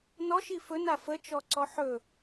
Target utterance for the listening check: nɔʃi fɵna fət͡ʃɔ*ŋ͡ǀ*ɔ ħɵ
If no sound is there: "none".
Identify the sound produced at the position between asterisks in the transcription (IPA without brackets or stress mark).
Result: ǀ